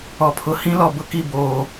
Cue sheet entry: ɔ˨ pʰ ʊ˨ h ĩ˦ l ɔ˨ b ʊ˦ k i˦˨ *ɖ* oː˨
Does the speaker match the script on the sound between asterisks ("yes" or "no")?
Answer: no